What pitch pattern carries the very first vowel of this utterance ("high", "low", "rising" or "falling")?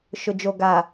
low